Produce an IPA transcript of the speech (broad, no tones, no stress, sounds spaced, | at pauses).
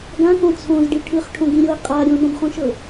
ɡ ã k õ t͡sʰ õ z ɖ i ʈʰ ɯ χ ʈʰ õ ɡ ĩ ɾʲ o ə̯ qʼ a ɾʲ õ n õ b χ õ ʃ ɤ